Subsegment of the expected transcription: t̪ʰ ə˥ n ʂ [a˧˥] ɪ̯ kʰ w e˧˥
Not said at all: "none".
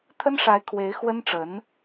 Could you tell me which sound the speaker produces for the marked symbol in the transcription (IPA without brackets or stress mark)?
a˧˥